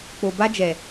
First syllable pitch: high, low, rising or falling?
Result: low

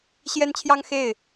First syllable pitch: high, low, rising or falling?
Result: high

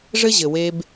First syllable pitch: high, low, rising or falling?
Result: high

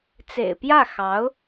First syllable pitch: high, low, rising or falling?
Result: low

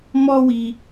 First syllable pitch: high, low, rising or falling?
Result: high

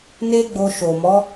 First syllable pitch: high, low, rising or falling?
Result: high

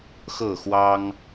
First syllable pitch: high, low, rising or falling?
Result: falling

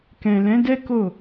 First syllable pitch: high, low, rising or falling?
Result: low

